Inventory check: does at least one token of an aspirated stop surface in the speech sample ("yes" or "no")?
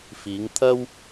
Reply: yes